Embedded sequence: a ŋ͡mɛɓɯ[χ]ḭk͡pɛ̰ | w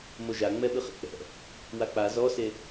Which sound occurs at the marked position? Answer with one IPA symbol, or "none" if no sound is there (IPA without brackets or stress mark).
χ